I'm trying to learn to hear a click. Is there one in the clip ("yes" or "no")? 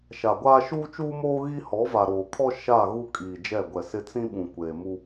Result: no